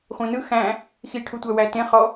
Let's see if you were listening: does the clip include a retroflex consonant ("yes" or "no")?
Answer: yes